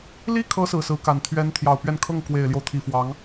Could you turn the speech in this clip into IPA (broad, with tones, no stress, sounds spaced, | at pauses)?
l i˥˩ kʰ ɤ˧˥ s ɹ̩˨˩ s ɹ̩˧˥ k a˨˩ n t̪ʰ ɥ ɛ˧˥ n t̪ʰ j ɑ˨˩ ʊ̯ p ɥ ɛ˥˧ n kʰ ɤ˥˩ ŋ k w e˨˩ ɪ̯ l j o˦ ʊ̯ t̪ʰ i˨˩ f w ɑ˧˥ ŋ